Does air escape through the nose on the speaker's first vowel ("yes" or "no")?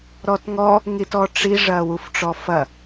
no